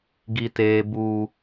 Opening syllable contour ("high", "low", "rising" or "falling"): low